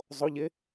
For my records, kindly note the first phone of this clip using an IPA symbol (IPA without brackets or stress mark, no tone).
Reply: zˤ